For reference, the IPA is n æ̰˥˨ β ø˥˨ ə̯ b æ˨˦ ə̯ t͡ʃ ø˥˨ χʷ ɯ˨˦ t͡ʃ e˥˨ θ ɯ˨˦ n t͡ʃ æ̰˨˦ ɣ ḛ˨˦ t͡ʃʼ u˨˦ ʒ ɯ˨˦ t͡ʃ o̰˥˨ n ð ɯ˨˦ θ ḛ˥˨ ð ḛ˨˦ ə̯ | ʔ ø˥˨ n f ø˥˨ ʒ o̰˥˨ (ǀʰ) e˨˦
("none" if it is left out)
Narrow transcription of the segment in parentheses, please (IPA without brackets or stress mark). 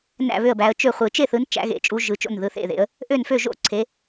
ǀʰ